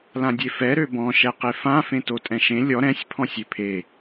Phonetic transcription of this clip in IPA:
l ã dʲ e f ɛ ɾ ø b ɔ̃ ʃ ɛ q e f ã f ẽ t o tʼ ɛ̃ ʃ ẽ lʲ ɔ ɾ ɛ̃ sʲ pʰ ɔ̃ sʲ e pʰ e

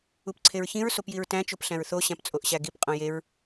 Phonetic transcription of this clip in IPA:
u p ǀʰ e ɹ ç ĩ ɹ s o p j i ɹ t æ̃ t͡ʃ o p ɬ æ̃ ɹ θ o ɕ æ̃ p t͡sʼ o ʔ ɕ æ ɡ i p qʼ õ j e ɹ

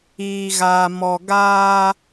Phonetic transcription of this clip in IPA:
iː˨ ɣ aː˨ m ɔ˨ ɡ aː˧

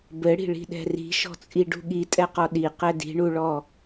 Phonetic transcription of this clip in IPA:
b ɘ ɽ i̤ ɭ i̤ ɗ ɛ̤ r i̤ ʃ ɔ̤ t͡sʼ i ɖ ṳ ɠ i tʼ ɛ q ɔ ɗ i q ɛ d i̤ ɳ u ɭ ɔ

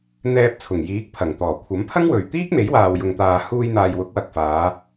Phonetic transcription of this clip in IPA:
n̪ ɛː˧ p̚ t͡sʰ ʊ˨˩ ŋ j iː˨˥ k̚ pʰ ɐ˨˩ ŋ t̪ ɔː˨˩ kʷʰ ɐ˨˥ m pʰ ɐ˥ ŋ w ɵ˨ ɥ t̪ iː˥ k̚ m e˨˥ j w aː˨ w j ʊ˨ ŋ t̪ aː˨ h uː˧ j n̪ aː˨ j w ʊ˨˥ k̚ w ɐ˨ k̚ f aː˨˧

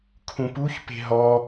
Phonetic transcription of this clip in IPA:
kʰ ũ p u ç p e̤ ɦ ɔ

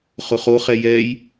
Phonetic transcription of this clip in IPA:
χ ʊ χ o χ ɛ j ɛ j

